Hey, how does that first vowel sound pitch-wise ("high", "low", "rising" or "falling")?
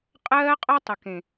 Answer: high